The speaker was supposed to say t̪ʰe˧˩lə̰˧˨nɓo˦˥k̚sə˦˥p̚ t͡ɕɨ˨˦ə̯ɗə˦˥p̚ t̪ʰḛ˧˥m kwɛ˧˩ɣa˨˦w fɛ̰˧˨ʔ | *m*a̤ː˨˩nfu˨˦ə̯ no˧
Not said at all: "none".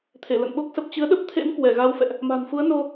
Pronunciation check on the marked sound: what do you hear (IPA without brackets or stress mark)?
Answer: m